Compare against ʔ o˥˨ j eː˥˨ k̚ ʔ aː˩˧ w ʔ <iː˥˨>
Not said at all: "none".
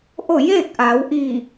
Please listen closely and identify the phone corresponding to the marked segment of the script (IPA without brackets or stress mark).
iː˧˩